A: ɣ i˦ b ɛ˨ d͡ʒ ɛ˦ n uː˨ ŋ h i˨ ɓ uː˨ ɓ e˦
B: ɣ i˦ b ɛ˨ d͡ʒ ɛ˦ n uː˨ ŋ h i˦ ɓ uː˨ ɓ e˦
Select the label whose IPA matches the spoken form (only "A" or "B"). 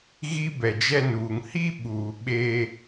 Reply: B